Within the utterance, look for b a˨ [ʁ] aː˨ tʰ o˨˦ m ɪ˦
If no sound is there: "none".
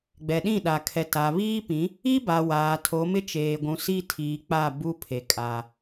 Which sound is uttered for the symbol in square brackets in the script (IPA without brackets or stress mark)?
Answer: w